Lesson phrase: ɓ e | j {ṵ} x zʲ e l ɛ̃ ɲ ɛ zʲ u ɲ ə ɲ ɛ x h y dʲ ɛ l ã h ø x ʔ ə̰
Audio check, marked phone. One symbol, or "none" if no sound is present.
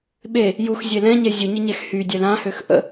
u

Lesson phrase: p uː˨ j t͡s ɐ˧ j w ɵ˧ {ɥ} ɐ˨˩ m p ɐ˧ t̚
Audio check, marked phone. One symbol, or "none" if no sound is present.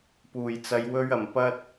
ɥ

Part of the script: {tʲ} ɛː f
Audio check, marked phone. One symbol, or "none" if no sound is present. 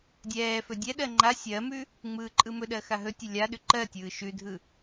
dʲ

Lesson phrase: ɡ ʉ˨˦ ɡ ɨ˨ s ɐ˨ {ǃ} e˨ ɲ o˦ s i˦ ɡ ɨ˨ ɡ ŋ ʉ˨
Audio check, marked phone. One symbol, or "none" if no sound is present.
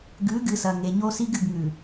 ŋ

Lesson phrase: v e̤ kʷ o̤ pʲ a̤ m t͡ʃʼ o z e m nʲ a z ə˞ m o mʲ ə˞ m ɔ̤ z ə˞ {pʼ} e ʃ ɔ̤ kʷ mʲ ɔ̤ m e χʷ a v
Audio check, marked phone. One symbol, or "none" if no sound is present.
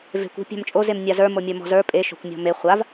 pʼ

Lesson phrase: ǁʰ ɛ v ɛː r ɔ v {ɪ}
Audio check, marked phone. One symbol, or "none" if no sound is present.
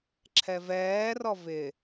ɪ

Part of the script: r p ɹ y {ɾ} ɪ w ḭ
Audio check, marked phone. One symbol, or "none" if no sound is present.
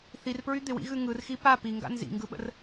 d̪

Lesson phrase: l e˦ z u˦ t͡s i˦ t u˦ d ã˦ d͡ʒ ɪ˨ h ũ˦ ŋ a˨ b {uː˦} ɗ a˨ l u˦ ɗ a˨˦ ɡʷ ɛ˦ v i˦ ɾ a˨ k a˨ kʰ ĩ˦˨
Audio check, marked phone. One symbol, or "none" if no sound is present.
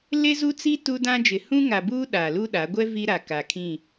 uː˦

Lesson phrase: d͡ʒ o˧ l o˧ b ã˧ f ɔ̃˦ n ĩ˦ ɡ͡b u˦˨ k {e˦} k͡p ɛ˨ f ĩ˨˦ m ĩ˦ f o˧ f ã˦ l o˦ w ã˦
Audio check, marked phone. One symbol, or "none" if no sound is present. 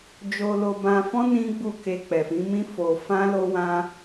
e˧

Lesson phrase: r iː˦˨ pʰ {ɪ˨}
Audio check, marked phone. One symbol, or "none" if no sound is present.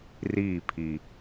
i˨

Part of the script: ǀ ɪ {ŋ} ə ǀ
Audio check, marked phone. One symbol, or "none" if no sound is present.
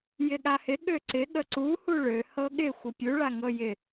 ɠ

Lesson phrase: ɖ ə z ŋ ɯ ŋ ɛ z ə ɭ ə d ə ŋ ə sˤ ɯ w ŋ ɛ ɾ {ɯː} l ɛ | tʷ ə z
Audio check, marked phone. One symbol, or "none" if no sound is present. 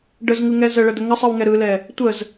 ɯ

